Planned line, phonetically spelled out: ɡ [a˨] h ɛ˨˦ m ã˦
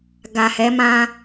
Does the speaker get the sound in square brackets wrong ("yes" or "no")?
no